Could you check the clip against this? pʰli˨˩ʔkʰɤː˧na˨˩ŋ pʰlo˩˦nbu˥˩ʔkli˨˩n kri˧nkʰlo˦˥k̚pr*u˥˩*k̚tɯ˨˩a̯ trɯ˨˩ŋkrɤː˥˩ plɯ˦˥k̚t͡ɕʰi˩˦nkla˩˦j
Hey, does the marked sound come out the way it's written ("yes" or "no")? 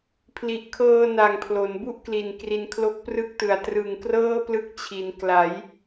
no